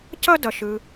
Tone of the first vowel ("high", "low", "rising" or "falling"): high